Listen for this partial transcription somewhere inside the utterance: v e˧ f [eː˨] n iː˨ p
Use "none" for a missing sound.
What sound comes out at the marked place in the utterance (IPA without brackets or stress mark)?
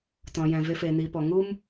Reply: eː˨